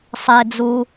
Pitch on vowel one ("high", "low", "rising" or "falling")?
low